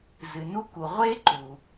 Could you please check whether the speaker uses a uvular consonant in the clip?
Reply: yes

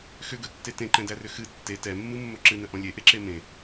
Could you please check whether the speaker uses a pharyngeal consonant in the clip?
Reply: no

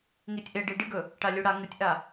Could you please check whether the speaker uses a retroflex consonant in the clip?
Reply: yes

